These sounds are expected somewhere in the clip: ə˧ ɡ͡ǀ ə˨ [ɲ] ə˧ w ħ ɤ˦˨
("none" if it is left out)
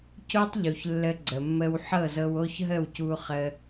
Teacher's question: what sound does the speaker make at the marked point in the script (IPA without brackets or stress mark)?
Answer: mː